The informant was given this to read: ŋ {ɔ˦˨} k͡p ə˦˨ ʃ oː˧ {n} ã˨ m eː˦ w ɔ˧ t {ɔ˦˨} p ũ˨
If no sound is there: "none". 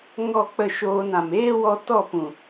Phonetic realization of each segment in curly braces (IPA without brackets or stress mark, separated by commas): ɔ˦˨, n, ɔ˦˨